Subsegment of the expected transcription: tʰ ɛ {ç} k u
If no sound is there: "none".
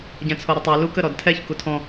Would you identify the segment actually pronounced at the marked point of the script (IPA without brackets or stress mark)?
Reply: ç